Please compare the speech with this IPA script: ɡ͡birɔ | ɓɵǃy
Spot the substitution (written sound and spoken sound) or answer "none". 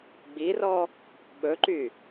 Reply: none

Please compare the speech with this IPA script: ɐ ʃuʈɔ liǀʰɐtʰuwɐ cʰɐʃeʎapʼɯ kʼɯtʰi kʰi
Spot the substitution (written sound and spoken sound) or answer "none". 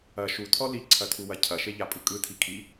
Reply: ʈ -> tʰ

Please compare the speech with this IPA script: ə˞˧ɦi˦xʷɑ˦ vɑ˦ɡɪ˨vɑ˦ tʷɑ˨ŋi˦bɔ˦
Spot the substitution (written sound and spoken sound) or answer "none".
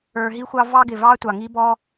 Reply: none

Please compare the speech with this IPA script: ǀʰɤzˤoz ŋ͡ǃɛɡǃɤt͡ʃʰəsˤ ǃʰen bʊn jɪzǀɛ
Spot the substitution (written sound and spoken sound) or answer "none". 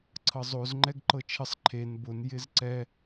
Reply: none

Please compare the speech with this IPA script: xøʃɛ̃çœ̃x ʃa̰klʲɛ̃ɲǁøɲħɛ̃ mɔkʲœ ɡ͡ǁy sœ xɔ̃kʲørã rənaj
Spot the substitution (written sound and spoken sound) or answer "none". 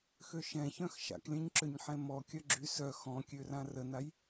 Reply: none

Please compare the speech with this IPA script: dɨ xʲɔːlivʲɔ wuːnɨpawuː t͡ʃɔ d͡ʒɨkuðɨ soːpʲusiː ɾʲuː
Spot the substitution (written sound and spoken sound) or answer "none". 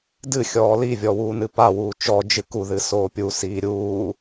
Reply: none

